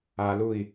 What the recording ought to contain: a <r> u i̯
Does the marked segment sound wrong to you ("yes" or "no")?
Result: yes